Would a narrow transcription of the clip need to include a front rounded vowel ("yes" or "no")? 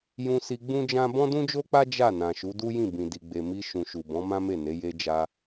no